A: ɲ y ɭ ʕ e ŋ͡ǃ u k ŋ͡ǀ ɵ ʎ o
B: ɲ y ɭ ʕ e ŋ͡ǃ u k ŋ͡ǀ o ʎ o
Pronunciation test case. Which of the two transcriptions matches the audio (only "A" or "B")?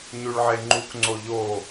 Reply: B